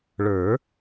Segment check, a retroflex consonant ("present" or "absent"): present